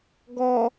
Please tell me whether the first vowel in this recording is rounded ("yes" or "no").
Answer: yes